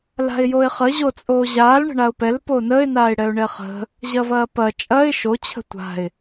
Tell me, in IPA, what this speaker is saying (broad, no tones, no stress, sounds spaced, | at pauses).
l a̤ ɪ̯ j o ɪ̯ χ ə ʑ o t͡sʼ oː ʑ aː l ɳ ə̤ ɳ a ʊ̯ p ɛ l p o n ə ɪ̯ n aː ɪ̯ ɽ ɛ ʊ̯ ɳ ɛ χ ə̤ | ʑ ɐ v ɐː p ɐ t͡ʃʼ ɐ ɪ̯ ʃ o t͡ɕʰ ə̤ tʷ a̤ ɪ̯